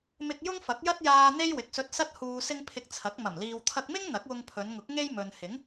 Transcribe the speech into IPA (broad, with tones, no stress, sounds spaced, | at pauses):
m ɪ˧ k̚ j ʊ˥ ŋ f ɐ˨˥ k̚ j ɐ˥ t̚ j aː˧ n̪ e˥ j w ɪ˨ k̚ s ɵ˧ t̚ s ɐ˥ t̚ h uː˧ s ɪ˥ ŋ pʰ ɪ˧ k̚ t͡sʰ ɐ˨˥ k̚ m ɐ˨˩ m l iː˨ w t̪ʰ ɐ˧ k̚ m ɪ˥ ŋ n̪ ɐ˨˥ k̚ w ʊ˧ ŋ pʰ ɵ˨˧ n ŋ ʊ˨˥ k̚ ŋ e˥ j m ɵ˨ n h ɪ˨˥ ŋ